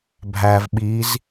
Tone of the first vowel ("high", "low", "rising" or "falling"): low